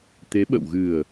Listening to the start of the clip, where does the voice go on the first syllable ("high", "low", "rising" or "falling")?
rising